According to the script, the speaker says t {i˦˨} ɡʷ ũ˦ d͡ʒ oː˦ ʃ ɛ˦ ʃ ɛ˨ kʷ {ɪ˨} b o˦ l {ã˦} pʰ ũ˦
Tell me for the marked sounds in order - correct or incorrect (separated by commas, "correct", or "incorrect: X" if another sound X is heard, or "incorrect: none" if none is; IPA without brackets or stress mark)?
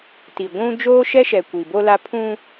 incorrect: i˨, incorrect: i˨, incorrect: a˦